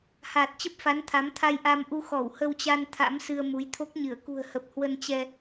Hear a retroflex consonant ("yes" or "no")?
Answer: no